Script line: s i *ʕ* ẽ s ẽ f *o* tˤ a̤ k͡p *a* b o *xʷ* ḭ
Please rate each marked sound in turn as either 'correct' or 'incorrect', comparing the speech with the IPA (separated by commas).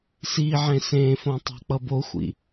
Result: correct, incorrect, incorrect, correct